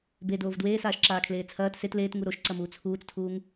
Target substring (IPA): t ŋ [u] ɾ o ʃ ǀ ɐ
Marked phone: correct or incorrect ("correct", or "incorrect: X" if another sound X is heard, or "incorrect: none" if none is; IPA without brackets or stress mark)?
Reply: correct